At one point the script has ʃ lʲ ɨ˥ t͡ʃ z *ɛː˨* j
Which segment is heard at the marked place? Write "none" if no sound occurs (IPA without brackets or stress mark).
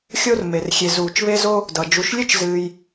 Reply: ɨː˨